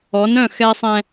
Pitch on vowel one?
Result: rising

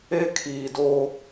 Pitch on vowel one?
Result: high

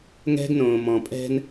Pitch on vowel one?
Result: high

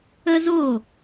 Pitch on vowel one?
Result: high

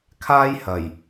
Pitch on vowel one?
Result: high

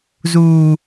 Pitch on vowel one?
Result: low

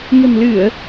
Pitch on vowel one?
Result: low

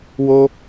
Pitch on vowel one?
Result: high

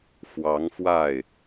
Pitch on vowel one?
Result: rising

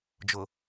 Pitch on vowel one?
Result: low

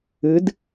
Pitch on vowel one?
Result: rising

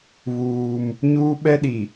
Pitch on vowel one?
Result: high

